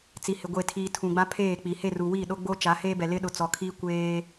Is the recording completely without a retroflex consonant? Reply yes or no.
yes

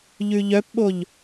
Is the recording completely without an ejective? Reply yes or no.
yes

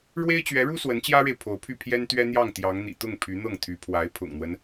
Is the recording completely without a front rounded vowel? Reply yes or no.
no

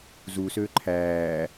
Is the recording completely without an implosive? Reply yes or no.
yes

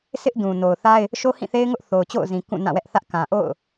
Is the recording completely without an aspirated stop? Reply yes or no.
yes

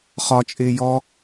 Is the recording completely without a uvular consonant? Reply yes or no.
no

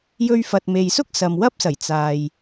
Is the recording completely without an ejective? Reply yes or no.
yes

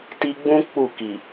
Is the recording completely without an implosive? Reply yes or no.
yes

